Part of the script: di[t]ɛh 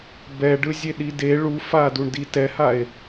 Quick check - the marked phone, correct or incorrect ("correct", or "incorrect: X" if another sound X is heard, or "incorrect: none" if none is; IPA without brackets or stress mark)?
correct